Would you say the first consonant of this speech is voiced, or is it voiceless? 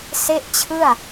voiceless